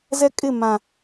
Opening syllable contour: high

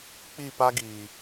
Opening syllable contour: falling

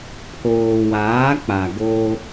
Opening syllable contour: low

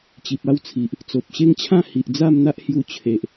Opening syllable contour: low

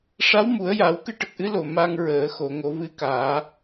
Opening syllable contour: rising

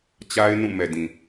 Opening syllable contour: high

